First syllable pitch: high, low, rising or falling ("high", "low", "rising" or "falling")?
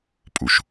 low